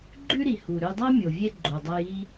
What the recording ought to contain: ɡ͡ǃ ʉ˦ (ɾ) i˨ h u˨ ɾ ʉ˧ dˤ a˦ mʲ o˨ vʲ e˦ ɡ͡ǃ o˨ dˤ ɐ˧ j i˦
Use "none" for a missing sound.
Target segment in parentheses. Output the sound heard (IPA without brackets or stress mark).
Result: ɾ